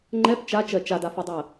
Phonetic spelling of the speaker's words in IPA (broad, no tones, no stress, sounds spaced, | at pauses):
ŋ͡ǃ ɛ p t͡ʃ a t͡ʃ ɜ t͡ʃ a d a f o dˤ ɜ